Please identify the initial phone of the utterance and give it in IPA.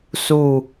s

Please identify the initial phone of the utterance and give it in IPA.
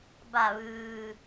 b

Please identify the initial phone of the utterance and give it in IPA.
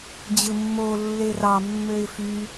d͡ʑ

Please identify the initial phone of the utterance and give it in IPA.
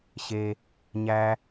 ɕ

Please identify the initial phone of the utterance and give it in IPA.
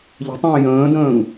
ʎ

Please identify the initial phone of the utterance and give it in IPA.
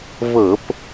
v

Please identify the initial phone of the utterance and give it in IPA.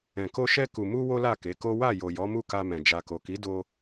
ɛ̃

